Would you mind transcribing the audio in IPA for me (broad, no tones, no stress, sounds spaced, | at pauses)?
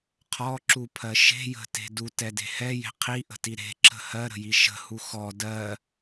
qʰ ɔ ǁ u pʰ ɜ ʃ e̤ j ə̤ t e̤ d u t ɛ d e̤ h ɛ j e̤ qʰ i ʔ ə̤ t i ɾ e̤ ǁ ə̤ h ɜ ɾ ə̤ j i ʃ ə̤ h u x ɔ d ɜ